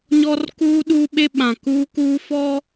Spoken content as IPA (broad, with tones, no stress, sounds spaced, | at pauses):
ɲ ɔ˦ r k uː˦ ɗ uː˦ ɓ e˦ ɓ ã˨ k uː˦ k uː˦ f ɔ˦